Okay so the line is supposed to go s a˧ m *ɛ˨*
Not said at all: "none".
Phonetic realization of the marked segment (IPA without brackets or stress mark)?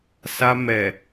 ɛ˨